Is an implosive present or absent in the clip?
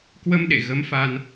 present